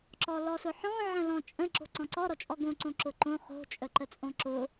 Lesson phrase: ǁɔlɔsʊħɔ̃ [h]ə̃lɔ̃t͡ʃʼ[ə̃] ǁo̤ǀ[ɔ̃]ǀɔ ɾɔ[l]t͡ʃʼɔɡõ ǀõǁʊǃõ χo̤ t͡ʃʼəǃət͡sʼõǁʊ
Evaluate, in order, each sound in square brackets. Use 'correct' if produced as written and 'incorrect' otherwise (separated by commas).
incorrect, correct, correct, incorrect